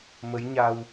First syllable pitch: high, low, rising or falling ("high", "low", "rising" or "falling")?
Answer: rising